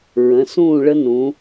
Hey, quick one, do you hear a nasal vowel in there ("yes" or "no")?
yes